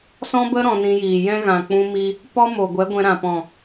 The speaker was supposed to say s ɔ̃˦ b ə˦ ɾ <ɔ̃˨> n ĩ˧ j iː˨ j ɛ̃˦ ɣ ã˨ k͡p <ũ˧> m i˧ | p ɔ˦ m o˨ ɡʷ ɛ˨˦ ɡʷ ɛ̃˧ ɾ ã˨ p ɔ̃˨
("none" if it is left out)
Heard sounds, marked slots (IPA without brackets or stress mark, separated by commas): ɔ̃˧, ũ˧